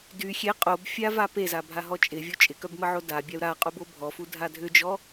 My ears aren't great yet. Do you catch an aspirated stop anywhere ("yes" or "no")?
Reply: no